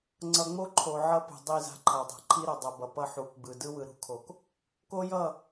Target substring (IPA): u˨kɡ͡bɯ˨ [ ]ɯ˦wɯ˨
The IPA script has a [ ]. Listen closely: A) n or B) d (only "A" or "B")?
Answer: B